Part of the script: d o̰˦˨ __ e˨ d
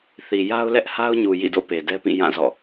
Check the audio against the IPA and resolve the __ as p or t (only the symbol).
p